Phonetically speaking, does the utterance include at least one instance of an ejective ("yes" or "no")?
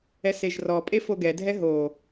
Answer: yes